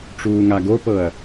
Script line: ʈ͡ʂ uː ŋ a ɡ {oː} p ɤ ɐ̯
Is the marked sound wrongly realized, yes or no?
yes